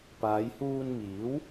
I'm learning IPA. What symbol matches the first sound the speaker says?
p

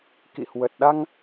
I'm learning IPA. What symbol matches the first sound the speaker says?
k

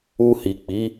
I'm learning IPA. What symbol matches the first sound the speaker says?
u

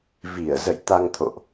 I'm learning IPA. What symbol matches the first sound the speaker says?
v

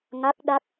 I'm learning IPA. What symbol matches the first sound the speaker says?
ŋ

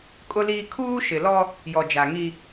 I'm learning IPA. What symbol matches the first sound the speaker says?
kʼ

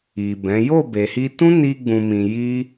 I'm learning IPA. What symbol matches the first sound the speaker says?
i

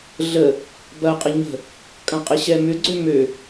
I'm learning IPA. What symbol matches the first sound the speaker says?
ɮ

